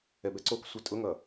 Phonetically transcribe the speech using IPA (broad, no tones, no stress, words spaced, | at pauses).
ɛbɛǀoksʷɛ tʼʊŋʌ